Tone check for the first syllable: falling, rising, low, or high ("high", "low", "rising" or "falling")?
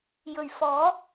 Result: low